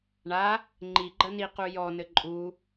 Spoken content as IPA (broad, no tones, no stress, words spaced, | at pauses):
ɳa | ŋ͡ǃi ɡ͡ǃɐniqu jɔnɘ ǃʼu